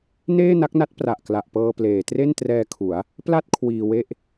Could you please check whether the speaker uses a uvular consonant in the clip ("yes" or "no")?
no